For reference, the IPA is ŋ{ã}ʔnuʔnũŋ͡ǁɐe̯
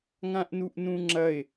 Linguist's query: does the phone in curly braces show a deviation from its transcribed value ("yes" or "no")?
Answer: no